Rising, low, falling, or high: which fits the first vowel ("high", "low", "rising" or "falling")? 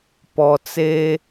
low